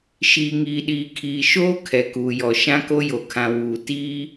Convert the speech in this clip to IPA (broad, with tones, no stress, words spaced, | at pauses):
ʃiː˨ŋiː˨ɗiː˨kʰiː˨ ʃoː˦ kʰɛ˨kuː˨jɔ˨ ʃã˦ko˦jo˨kʰã˨ wuː˨ tiː˦